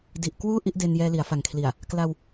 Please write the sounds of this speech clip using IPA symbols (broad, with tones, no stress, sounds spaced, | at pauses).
d i˨˩ ʔ k w uː˥˩ ʔ i˦˥ ʔ d e˧ n j ɛː˧ l i˩˦ a̯ f a˨˩ ŋ kʰ l i˨˩ a̯ | k l a˧ w